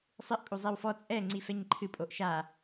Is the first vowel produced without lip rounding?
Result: yes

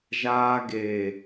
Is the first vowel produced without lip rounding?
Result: yes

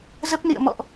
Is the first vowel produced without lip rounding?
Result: yes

